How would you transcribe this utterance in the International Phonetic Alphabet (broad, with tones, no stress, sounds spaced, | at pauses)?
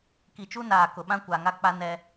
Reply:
k i˨ t͡ʃ u˦ n aː˨ k ʊ˨ ɓ ã˦ kʷ a˨ ŋ a˦ k͡p a˦ n ɛ˦